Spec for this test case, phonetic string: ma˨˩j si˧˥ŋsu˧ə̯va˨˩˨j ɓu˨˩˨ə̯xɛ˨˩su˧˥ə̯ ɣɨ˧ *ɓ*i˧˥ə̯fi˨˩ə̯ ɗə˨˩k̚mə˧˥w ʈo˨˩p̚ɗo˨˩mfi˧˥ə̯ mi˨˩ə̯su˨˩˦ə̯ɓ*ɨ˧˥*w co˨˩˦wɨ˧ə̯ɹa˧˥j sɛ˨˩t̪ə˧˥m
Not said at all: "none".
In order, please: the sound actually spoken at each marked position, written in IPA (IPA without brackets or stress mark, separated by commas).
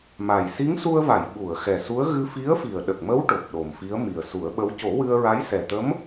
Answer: f, ə˧˥